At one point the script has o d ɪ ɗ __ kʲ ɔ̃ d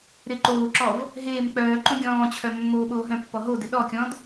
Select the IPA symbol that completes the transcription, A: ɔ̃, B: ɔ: B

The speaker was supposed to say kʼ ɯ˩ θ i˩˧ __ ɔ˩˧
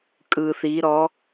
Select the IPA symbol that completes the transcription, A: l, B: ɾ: B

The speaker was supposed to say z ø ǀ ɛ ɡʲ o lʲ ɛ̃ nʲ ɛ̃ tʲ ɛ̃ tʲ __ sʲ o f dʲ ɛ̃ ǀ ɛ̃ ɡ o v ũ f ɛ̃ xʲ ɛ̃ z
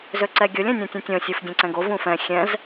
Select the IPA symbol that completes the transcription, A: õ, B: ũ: A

